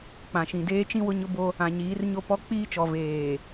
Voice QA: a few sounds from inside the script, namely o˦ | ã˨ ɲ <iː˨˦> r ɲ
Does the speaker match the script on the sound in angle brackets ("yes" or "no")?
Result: yes